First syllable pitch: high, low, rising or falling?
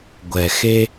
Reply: low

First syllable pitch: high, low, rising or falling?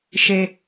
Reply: low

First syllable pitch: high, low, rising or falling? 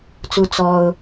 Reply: high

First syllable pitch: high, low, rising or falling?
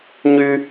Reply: high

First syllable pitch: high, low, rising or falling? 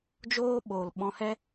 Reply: high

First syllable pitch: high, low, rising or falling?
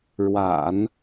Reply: low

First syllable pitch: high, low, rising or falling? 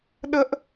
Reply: high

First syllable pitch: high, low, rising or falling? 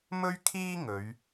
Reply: high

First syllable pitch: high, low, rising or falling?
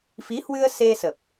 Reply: rising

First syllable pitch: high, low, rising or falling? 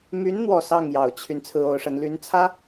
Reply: rising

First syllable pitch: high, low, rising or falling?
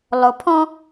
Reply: low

